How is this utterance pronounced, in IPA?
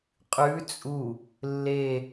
qʼʉ t͡sʼu | lːe

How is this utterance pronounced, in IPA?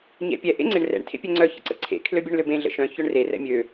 ɲɛ̰pʲɛ ʔḛŋ͡ǀeɳrɛ̰ɳ tʰḛpʲɛŋ͡ǀœ çə̰ǀə̰ǀʰḛ kʰløbʲœɳløbẽ ɮə̰ʃœ̃ çœɳre rɛ̰mʲø

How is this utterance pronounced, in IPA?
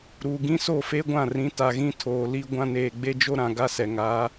ɾu˨ ɡĩ˦ so˦˨fe˦ɡʷã˦˨ rĩ˨˦ta˨ɣĩ˦ tʰoː˨li˦ɡʷã˦ neː˨ɡ͡be˦d͡ʒo˦ ɾã˨ɡa˦sɛ˨ ŋa˨˦

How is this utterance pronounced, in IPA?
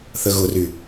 θəɣʊry

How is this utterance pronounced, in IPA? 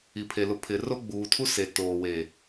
i˨pʰe˨lʊ˨ pʰɪ˨ro˦ ɡ͡buː˨ tʰu˦se˨ toː˨we˨

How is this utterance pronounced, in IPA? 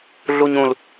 ɮuɲũl

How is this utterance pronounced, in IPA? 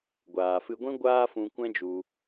ɡʷaː˨fɨ˧ɡʷĩ˦ ɡʷaː˦fũ˧kʷɛ̃˦d͡ʒu˧

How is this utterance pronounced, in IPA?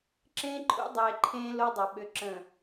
ǁẽː˦ǃʰṵ˦ dˤeː˨ǃʰẽː˦ lo˦dˤɐ˨ ɓʏ˨ ǁə̃˨

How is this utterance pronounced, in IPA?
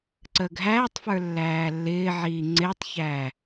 ǀəːɡɦæːtˤfə˞ lːæːlːɪːʕiː ŋ͡ǀɪːtˤçæ

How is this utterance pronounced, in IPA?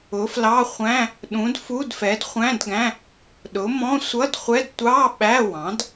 ʊ˩˥flɑ˧˥˧ χʷæ̃˧˥˧ | ɗũ˩˥dfu˧˥˧d fɛ˩˥dχʷæ̃˧˥˧dɡæ̃˧˥˧ | ɗʊ˩˥mɔ̃˧˥˧ sʷʌ˧˥˧dχʷɛ˧˥˧d tʷɑ˧˥˧ ɓæ˧˥˧wɑ̃˩˥d

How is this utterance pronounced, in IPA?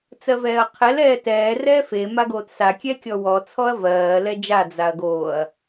t͡sɜvɛːɐ̯qʰɛl ɛːtɛː rɛːfe maɡoːtsa kʲɛkʲɔwɔ t͡sʰɔɐ̯vɜː lɛd͡ʒa d͡zaɐ̯ɡoːɐ̯

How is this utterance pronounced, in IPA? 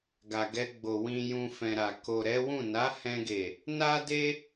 ɡa˨ɡɛ˧ɡ͡bo˨ wĩ˨jũ˨ fɛ̃˨ɾa˨ ko˨ɾɛ˨˦wũ˦˨ na˨˦hɛ̃˧ɡe˨ | na˦de˦

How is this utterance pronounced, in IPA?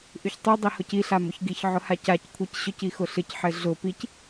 ʔyçtˤy dˤihʊci ɬamʊçɡiç ʕʊhacac kʷʰicɕʊc ixʊɬɪc ħɪɮʊ pic

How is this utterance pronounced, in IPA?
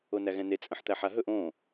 onæɣɛ̃ne t͡sʼə̃ħt̪æħaɦɵʔ õ

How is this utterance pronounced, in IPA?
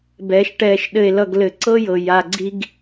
bɛ˨˦ʃʈɛː˧ʃɗɘ˧e̯lʌ˧ɡ lɘ˨ǀɤ˦jɤ˨ ja˧ɡ͡ǀi˦ɡ

